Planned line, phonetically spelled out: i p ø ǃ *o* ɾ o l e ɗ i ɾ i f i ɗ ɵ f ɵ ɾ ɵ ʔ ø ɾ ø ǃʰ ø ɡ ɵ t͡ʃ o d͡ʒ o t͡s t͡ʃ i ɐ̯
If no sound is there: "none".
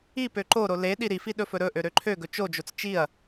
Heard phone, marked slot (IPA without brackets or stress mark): o